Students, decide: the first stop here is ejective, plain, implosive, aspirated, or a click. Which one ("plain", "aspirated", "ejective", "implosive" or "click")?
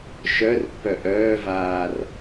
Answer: plain